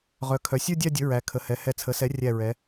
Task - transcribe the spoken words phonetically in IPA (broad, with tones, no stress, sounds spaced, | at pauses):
ʁ œ˩˧ kʰ œ˩˧ sʲ ə˞˥˧ dʲ a˥˧ dʲ ə˩˥ ɹ æ˩˧ kʰ ə˩˧ h ɛ˩˧ h ɛ˧˩ t͡sʰ ə˩˥ s ɛ˩˥ rʲ æ˧˩ ɹ ɛ˩˧